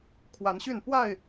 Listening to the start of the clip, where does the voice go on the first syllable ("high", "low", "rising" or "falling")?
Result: rising